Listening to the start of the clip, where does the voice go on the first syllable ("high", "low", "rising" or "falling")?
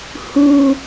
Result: low